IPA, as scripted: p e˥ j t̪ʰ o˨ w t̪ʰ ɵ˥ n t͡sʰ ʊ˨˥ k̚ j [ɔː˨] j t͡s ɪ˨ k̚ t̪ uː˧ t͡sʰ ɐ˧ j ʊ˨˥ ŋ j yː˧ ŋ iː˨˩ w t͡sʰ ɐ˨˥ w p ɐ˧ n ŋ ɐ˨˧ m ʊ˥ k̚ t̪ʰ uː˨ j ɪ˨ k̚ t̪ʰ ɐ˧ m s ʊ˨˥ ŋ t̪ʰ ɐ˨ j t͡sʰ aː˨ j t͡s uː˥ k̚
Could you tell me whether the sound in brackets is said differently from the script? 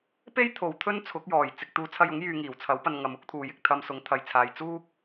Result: yes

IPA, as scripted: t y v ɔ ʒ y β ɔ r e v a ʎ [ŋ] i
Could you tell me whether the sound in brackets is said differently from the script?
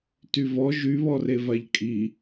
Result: yes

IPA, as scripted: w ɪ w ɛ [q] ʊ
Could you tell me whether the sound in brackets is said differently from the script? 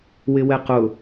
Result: no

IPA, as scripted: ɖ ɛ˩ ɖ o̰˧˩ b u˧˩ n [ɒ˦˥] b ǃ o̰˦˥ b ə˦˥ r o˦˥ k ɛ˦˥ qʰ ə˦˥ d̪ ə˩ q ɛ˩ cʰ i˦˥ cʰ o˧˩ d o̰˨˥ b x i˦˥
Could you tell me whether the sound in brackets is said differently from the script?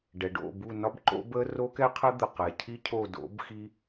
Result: no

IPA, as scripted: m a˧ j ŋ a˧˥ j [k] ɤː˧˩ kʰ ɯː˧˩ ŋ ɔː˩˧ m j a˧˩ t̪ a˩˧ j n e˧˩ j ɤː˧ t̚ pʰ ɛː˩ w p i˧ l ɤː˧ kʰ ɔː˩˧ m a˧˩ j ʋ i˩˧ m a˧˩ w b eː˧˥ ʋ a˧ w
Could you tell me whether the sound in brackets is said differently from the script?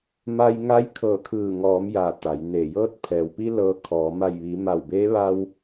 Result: yes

